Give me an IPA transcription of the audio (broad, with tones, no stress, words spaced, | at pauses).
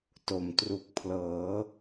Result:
to˨˩m tru˨˩k̚pʰlɤː˩˦